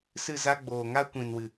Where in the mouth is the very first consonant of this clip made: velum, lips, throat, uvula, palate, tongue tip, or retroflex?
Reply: tongue tip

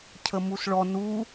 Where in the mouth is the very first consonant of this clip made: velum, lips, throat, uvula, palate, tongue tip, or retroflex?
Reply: palate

